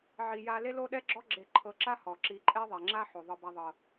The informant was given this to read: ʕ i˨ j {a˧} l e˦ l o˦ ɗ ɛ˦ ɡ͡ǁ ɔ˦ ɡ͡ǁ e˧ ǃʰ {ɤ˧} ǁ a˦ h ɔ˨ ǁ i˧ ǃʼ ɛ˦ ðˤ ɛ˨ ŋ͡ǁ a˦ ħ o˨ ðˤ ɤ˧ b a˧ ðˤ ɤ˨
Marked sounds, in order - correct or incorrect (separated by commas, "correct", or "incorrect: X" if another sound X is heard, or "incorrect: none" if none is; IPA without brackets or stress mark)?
correct, correct